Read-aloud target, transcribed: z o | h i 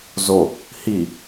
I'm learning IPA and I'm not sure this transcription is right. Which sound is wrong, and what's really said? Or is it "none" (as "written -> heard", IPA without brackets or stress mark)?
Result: none